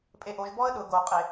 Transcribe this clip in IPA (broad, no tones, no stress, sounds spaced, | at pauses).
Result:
pʼ e ʔ o ʒ b ɔ ə̯ ɗ ʊ ɡ o qʼ e